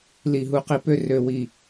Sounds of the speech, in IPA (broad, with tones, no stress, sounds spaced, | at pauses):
l i˧˩ ɦ u˧˥ q i˧ p ø˥˧ r ø˧ w i˧˩